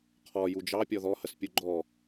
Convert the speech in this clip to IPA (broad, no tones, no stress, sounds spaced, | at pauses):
qʰ ɔ j u d͡ʒ ɑ pʲ ɔ ð ɔ h ə s pʲ u ɡ͡ǃ ɔ